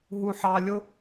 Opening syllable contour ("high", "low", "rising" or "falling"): low